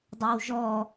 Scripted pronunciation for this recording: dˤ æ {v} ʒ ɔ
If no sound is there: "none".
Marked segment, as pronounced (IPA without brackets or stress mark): w